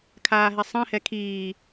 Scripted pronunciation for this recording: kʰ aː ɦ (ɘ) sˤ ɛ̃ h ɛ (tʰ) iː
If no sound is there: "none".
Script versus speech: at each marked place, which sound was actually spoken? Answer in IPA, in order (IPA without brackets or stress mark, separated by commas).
ɛ, kʰ